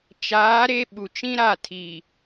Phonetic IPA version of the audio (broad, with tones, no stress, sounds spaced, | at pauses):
t͡ʃ aː˨˦ ɾ e˦ ɓ u˨ t͡ʃ ĩ˦ ɾ a˦˨ tʰ iː˨